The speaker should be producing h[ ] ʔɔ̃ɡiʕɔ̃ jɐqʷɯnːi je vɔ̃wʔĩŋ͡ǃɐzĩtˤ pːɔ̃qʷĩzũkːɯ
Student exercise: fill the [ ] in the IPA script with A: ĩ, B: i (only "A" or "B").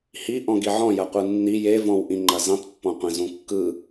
B